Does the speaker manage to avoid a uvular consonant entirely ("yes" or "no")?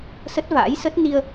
yes